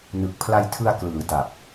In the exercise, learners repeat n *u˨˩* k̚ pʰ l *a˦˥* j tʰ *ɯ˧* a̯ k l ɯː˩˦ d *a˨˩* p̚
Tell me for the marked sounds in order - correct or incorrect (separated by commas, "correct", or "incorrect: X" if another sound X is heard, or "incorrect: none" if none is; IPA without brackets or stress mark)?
incorrect: ɯ˨˩, incorrect: a˧, correct, correct